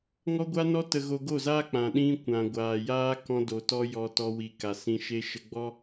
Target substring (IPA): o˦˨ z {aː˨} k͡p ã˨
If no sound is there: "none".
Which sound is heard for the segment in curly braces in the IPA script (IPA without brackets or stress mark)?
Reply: aː˦